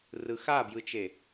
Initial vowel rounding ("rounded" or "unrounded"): unrounded